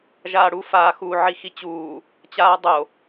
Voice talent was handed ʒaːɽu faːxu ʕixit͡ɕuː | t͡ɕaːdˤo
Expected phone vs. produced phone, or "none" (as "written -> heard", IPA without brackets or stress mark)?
none